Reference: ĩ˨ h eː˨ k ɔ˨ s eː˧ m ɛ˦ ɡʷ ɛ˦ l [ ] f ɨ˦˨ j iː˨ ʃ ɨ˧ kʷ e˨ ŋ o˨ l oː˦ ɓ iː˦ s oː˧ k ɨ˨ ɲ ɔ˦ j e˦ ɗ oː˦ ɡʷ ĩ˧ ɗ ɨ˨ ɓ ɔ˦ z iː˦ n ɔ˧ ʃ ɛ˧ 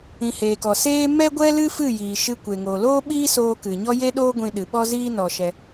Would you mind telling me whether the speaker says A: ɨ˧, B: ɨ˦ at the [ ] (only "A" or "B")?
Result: B